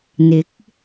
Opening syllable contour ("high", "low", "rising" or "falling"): rising